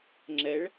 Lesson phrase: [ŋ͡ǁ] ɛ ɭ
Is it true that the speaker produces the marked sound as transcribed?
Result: yes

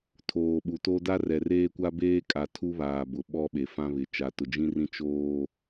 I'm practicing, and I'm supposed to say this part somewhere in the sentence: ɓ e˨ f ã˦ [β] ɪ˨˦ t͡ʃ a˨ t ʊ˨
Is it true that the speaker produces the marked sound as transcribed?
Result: yes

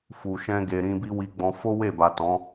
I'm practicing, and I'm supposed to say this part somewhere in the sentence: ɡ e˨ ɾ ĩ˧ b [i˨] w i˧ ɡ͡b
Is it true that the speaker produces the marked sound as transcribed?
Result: no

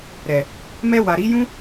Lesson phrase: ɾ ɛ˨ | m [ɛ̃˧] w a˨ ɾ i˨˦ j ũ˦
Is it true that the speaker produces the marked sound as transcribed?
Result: no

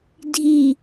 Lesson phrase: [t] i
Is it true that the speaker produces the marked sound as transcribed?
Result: no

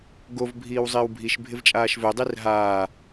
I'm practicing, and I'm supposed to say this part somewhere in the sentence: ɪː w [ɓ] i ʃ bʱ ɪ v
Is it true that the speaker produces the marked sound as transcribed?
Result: no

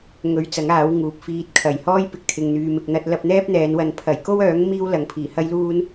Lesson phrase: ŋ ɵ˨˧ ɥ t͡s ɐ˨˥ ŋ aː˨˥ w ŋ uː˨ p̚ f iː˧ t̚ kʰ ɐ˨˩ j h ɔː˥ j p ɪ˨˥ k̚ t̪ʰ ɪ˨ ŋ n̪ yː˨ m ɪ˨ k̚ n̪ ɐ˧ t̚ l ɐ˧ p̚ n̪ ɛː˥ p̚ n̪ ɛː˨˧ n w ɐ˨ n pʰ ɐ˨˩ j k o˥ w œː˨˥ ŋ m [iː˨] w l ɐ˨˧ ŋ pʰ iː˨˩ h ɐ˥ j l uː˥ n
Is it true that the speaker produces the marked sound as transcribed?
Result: no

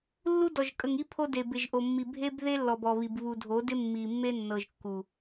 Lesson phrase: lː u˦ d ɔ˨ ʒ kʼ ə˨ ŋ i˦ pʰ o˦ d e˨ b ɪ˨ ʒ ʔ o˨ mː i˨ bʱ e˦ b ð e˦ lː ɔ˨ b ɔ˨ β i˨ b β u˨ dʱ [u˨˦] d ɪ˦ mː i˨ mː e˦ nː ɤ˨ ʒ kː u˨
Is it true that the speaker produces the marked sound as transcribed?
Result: no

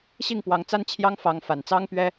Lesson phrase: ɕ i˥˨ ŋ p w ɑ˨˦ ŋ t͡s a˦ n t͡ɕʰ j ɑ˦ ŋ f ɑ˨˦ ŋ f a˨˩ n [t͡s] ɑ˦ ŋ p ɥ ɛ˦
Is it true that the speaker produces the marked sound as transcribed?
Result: yes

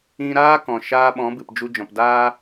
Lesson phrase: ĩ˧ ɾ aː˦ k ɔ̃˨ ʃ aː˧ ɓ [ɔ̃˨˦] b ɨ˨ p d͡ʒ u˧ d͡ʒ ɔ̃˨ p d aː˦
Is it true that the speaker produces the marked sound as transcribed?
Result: yes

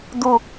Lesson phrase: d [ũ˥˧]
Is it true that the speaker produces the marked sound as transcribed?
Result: no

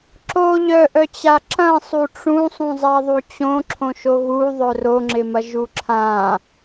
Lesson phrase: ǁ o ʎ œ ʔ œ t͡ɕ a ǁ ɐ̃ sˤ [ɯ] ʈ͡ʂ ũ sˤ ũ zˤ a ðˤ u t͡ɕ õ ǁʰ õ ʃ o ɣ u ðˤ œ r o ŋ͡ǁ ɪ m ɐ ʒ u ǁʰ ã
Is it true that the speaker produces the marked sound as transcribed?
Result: no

